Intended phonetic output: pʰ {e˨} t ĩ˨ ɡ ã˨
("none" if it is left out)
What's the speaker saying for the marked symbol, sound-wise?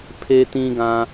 e˨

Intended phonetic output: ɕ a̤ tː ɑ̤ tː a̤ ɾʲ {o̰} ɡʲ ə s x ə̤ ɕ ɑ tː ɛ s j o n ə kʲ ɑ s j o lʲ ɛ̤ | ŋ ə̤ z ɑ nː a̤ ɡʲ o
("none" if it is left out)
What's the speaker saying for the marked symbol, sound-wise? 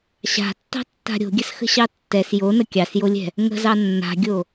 o̤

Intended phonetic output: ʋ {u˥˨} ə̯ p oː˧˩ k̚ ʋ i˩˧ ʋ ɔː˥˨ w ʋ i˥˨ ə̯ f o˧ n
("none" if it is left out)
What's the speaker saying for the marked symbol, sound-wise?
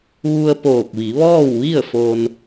u˧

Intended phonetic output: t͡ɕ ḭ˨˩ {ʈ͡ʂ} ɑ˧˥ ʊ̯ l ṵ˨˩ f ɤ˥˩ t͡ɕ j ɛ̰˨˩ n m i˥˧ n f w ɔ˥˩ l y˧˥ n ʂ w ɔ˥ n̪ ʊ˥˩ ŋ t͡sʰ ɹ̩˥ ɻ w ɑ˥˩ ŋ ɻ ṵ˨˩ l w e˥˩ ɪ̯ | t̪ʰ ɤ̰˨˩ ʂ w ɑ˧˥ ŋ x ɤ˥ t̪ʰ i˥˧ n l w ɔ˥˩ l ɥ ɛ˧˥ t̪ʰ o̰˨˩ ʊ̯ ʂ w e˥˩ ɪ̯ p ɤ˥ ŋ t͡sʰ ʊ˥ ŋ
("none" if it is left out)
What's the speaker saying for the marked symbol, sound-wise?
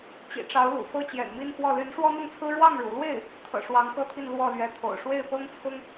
ʈ͡ʂ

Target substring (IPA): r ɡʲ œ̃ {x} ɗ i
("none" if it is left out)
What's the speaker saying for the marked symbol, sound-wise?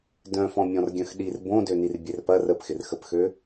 x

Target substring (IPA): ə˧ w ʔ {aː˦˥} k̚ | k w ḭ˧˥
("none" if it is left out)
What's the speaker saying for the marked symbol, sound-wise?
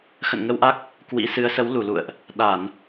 a˦˥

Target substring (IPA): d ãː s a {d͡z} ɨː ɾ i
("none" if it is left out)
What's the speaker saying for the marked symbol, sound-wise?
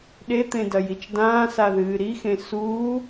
ð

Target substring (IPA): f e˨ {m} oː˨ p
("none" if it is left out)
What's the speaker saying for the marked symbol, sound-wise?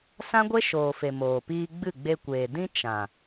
m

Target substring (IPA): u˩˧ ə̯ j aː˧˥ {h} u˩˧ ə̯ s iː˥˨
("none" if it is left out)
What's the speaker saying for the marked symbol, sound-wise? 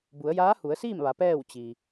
h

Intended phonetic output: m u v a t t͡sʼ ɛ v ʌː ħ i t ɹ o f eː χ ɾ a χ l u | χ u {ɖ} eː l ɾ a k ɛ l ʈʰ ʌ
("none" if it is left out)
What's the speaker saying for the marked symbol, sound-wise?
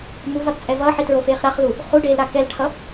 ɖ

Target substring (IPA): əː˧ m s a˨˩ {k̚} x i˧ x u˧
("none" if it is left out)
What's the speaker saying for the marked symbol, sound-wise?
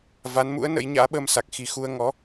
k̚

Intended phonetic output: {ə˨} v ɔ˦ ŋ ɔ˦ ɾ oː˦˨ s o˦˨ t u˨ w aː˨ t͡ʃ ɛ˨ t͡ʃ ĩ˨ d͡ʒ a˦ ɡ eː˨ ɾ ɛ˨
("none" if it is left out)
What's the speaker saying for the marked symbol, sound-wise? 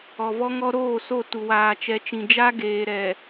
ɔ˨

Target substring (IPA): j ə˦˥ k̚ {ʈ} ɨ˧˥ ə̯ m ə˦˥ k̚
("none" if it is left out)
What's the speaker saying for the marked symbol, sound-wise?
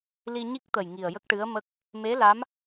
ʈ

